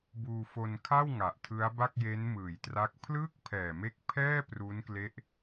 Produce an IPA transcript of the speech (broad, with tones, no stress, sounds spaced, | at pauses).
b uː˧ f o˧ n kʰ a˥˩ w ŋ a˨˩ ʔ tʰ ɯ˦˥ a̯ b a˥˩ k̚ j e˦˥ n m ɯː˩˦ j t r a˦˥ k̚ pʰ l ɯː˥˩ k̚ pʰ ɛː˨˩ m e˦˥ k̚ pʰ ɛː˥˩ p r u˦˥ n k l e˦˥ ʔ